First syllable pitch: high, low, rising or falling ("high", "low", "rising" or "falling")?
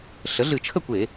rising